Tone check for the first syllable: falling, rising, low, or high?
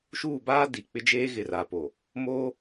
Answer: falling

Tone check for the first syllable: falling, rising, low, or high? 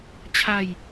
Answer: falling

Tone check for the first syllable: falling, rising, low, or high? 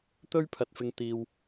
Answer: high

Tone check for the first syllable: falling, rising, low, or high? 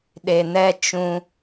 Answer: low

